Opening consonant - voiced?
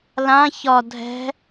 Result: yes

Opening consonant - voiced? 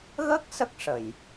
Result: yes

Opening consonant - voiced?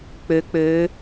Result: no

